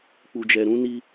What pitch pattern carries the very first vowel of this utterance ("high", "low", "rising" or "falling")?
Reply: low